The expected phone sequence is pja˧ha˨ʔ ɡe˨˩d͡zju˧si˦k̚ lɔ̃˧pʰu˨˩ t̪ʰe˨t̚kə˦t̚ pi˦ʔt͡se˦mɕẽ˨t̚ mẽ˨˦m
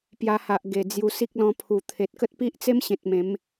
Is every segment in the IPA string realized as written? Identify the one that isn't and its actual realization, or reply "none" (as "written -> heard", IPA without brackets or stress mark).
none